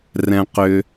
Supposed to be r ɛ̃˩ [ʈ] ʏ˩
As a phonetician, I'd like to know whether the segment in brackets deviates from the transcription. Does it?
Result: yes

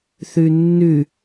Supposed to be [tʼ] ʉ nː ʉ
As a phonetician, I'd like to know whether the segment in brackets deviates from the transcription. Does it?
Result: yes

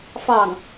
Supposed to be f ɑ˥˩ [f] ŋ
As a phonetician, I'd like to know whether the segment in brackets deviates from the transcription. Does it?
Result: yes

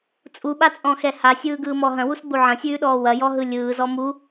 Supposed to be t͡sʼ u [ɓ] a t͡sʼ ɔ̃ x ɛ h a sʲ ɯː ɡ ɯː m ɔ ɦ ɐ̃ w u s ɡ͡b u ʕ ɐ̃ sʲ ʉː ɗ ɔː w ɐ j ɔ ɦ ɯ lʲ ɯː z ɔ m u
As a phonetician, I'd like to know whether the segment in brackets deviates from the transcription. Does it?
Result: no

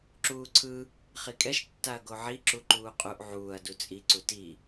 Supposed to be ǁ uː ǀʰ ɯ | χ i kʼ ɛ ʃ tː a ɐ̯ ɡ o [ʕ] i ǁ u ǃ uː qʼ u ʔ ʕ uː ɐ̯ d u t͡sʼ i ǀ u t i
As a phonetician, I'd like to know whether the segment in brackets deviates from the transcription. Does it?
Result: no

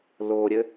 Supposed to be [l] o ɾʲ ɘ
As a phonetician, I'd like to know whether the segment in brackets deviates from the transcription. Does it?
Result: no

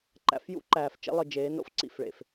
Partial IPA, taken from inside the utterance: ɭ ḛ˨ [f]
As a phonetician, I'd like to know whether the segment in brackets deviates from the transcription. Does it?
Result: no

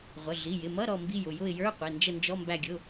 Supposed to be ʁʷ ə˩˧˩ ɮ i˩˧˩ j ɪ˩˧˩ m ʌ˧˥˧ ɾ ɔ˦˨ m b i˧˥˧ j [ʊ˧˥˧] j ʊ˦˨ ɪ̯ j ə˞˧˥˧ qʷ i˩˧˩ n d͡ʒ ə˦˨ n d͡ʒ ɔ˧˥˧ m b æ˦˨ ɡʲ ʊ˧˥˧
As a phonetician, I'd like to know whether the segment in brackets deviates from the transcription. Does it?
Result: yes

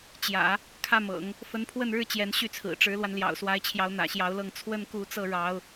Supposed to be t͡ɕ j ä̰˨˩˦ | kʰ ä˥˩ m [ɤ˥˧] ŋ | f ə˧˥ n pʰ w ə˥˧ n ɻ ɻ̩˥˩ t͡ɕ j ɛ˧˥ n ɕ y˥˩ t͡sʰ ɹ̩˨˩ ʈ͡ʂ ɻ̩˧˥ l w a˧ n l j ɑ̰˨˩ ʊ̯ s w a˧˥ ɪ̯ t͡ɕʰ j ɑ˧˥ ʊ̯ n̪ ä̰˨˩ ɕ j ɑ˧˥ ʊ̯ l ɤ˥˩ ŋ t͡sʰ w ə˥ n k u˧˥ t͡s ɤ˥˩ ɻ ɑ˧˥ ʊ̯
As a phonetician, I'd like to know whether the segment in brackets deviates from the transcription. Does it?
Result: yes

